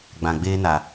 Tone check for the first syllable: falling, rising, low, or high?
low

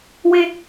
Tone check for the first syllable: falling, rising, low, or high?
high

